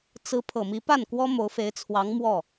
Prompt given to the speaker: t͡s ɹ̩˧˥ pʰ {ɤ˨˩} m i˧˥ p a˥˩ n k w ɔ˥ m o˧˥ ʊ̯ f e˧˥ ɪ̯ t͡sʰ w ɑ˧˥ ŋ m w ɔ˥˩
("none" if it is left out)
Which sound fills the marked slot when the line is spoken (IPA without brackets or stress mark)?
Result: ɤ˨˩